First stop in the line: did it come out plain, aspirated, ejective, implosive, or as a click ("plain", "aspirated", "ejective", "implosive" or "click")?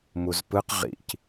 plain